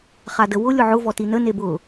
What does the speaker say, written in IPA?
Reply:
χ a d ə w ʊ lʲ ʊ ʕ ʊ v ɔ t i n ə n e b ʊ

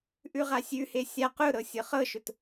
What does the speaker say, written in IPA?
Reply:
ʔ ʉ ʁ a sʲ ʉ h e sʲ a q ʊ ɾ ɤ sʲ ɤ χ ɤ ʃ ʊ t

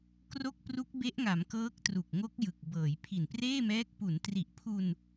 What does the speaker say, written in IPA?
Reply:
k r o˥˩ k̚ p r u˦˥ k̚ b e˦˥ ʔ ŋ a˩˦ m k ɤː˦˥ k̚ t r u˨˩ k̚ ŋ o˦˥ k̚ j ɯ˨˩ k̚ b ɤː˩˦ j pʰ i˨˩ n p r eː˥˩ m ɛː˦˥ k̚ p u˩˦ n t r i˨˩ ʔ pʰ u˧ n

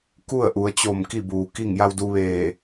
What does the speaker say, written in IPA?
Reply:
k u˥˨ ə̯ ʔ u˩˧ ə̯ t͡ɕ o˧˩ m k i˥˨ b uː˩ k i˥˨ ŋ j a˧ w d u˧ ʋ eː˧˩

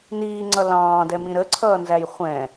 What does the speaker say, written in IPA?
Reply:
n iː ŋ͡ǀ ʌ l ɑ̃ː d ɛ m ĩ ɾ ə ǀʰ ʌː n z æ j χʷ ɛ̃

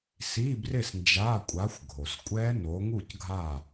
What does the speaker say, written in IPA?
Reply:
s i˧˥˧ b r ɪ˥˨ s n d͡ʒ a˧˥˧ kʷʼ a˨˦ xʷ ɡʱ o˩ s kʷʼ ɛ˦˥ n o˨˦ ŋ u˥˨ c ɡʱ a˥˨

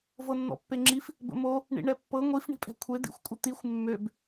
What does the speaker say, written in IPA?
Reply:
v ɤ nː ɔ̰ pː e ŋ͡ǁ i f | b ə̰ m o | ɳ ḭ ɳ ɛ pː ɤ ŋʷ i f ɳ i̤ pʼ ɛ̤ kʷʰ e d̪ ḭ xʷ kʷʼ ə t̪ i xʷ mː ø b

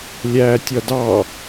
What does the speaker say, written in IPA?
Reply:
lʲ æː tʲ ʌ d ɑ

